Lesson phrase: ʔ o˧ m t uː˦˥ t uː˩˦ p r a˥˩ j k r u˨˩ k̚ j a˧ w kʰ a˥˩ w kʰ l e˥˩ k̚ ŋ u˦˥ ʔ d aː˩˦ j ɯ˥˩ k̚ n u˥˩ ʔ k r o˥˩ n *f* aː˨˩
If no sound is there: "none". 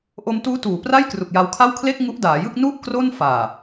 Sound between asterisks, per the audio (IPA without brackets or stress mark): f